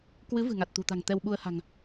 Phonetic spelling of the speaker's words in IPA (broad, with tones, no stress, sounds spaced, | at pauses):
k w ɨ˨˦ v ɨ̤˨˩ ŋ a˨˩ t̚ t̪ ṳ˨˩ t̪ a̤˨˩ ŋ t̪ ɛ˧ w ɓ u˧ ə̯ h a̤˨˩ ŋ